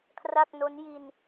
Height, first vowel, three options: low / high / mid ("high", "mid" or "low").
low